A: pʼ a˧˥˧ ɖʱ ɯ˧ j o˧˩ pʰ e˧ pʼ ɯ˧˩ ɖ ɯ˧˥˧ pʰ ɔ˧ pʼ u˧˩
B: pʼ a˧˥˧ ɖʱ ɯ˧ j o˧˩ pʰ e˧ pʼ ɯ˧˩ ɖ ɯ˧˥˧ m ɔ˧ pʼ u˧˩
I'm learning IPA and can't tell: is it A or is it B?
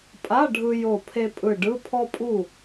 A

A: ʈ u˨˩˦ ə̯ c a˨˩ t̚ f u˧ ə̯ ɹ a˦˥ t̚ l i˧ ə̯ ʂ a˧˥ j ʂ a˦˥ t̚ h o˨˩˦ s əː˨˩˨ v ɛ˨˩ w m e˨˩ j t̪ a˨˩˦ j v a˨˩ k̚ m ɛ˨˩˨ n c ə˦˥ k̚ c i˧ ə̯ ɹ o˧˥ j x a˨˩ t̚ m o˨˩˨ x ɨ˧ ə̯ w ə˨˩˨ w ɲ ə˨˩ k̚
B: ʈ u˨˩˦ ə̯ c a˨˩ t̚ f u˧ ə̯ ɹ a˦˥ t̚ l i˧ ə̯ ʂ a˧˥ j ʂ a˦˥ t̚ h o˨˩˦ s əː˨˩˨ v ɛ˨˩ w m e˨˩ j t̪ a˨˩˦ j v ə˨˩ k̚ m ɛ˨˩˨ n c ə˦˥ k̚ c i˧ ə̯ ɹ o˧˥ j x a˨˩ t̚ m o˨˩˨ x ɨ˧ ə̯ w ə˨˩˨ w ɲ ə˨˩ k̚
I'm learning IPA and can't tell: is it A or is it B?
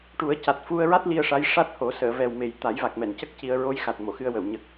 A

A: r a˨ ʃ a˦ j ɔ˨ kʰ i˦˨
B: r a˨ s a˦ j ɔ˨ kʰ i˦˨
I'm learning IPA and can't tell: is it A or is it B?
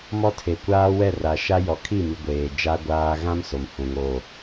A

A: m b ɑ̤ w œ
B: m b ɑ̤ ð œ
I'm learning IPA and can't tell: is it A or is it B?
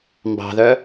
B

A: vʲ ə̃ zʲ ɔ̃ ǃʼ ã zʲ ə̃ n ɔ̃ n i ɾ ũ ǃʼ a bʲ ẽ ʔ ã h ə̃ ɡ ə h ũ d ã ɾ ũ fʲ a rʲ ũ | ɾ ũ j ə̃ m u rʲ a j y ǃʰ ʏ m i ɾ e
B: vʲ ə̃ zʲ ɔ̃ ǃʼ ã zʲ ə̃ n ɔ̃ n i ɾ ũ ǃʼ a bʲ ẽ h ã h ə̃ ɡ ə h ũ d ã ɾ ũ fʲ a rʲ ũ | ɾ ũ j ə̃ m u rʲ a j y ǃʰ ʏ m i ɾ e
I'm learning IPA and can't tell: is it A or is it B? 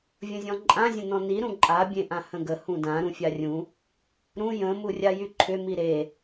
A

